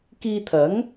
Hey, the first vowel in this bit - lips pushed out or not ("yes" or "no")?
no